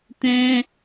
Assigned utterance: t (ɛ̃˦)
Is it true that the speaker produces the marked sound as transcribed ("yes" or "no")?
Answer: yes